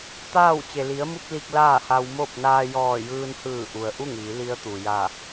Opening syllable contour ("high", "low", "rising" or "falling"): falling